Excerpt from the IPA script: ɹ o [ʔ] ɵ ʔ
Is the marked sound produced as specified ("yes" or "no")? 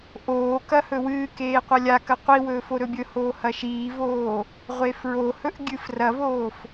no